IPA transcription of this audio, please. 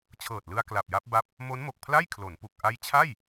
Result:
t͡ɕʰ ɤː˨˩ t̚ l ɯ˧ a̯ k l a˨˩ p̚ j a˦˥ p̚ b a˦˥ p̚ | m o˦˥ n m o˨˩ k̚ pʰ l a˥˩ j kʰ l o˩˦ n p u˨˩ k̚ ʔ a˦˥ j t͡ɕʰ a˥˩ j

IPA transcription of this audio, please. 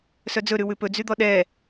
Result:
s œ d͡z ɵ ɾ ʉ w ʉ p ɵ d͡z y d̪ ɔ ɗ ɛ

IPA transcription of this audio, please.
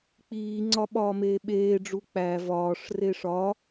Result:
k͡p iː ŋ͡ǀ ɒ ɓ ɒː m eː ɓ eː ɖ͡ʐ u k͡p æ v ɒː ʂ r e ʂ ɒ

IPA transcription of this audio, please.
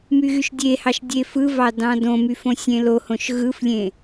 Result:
m y ɣ y ʃ dʲ e h ɑ ʃ dʲ e f ɯ v ɑ d ɑ̃ d õ m y f õ sʲ ẽ l o h õ ʃ ɣ ɯ f lʲ ẽ

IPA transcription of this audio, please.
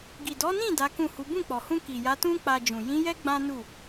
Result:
ɡ i˨ d ɔ˨˦ n ĩ˦˨ d a˨˦ k ũ˦˨ h u˨˦ b ũ˦˨ k͡p ɔ˨ h ũ˧ k i˨ j a˨˦ t ũ˦ k͡p a˧ d͡ʒ ũ˨ j ĩ˨˦ j ɛ˦ ɡ͡b ã˦ n u˦˨

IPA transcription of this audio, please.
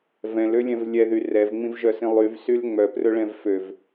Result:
v ɛ̃ l ø lʲ ɛ̃ v lʲ ɛ ð y r ɛ v ŋ͡m ĩ v ʒ œ s ĩ lˠ y v s y l ŋ͡m œ p r ɵ ɭ ɛ̃ v f ø v

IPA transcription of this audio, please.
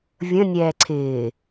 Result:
vʲ ə̃ nʲ ɛː ǀʰ ɪː

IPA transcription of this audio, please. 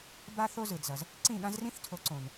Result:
b a˥ θ o˥ z ɯ˩ d z ʌ˩ z | ǀ ĩ˥˩ ɠ ã˥ z r ĩ˥ θ tʰ o˩˥ ǀ õ˩ n

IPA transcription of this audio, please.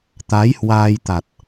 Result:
t̪ a˨˦ j h w aː˧ j t̪ a˨˩ t̚

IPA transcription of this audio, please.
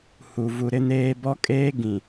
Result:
h u˨ v u˨ ɾ ɪ˦ n eː˦ b ɔ˦ kʼ eː˦ ɡ ĩ˨

